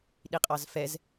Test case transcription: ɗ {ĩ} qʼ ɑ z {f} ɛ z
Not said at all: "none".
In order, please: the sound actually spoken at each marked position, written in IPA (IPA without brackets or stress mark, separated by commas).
i, f